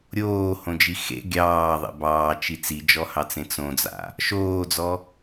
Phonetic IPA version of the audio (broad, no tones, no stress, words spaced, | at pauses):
ɾʲoːhõd͡ʒi xḛ ɡʲɑːðˤḛ bɑːt͡ʃi t͡sid͡ʒɔhɑt͡sẽ t͡sõd͡za̰ | ʃoːd͡zɔ